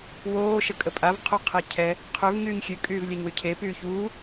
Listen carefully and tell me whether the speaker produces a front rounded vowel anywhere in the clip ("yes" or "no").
yes